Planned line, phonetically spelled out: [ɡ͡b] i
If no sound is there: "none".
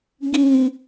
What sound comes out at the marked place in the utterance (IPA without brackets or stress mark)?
ɡ